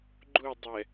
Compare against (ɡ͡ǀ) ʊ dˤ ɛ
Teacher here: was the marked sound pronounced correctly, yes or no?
no